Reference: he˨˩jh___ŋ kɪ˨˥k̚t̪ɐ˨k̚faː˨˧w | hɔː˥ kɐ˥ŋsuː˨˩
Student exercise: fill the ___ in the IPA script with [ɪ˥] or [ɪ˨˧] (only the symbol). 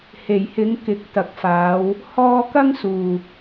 ɪ˨˧